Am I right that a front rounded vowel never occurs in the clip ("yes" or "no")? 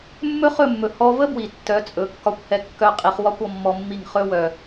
no